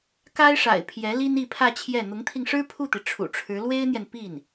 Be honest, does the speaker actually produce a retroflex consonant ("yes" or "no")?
yes